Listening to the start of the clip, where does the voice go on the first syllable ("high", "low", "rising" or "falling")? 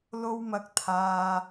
high